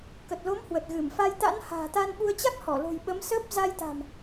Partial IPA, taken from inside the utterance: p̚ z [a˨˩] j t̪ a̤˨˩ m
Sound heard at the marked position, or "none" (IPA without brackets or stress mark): a˧